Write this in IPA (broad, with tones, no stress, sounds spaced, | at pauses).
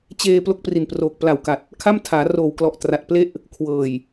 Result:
t͡ɕ eː˧ p l o˥˩ k̚ p r i˨˩ n p r oː˨˩ k̚ p l a˨˩ w k a˨˩ t̚ | kʰ a˥˩ m tʰ aː˩˦ r oː˨˩ w k l ɔ˨˩ ʔ t r a˨˩ t̚ p l e˥˩ ʔ | kʰ w ɤː˨˩ j